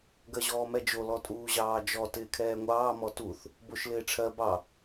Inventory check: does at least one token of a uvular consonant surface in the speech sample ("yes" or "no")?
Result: no